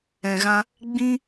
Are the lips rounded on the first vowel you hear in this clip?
no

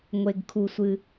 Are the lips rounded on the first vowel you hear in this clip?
no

